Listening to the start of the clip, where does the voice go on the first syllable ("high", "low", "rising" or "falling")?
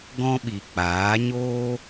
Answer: high